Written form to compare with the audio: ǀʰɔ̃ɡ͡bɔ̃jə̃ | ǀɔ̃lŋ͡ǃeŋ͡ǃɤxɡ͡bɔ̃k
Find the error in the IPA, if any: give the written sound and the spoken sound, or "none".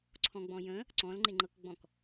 x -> k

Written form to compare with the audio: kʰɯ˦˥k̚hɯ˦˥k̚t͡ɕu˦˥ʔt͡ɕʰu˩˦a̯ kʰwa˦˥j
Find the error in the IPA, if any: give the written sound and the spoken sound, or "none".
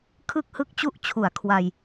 a˦˥ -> a˧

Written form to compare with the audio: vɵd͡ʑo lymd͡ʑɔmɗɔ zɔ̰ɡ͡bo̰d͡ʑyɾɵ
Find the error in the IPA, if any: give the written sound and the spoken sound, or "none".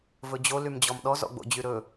none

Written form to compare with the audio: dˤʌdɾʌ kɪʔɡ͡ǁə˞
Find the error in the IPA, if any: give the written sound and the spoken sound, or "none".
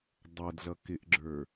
ɾ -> ɮ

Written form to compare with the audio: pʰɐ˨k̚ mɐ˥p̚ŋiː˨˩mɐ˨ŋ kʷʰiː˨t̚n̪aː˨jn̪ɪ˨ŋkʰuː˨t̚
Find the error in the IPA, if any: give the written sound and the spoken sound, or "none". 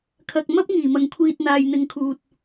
pʰ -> kʰ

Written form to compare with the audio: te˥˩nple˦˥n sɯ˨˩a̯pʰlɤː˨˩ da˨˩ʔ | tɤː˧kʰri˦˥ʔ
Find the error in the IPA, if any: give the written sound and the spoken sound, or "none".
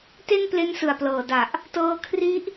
pʰ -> p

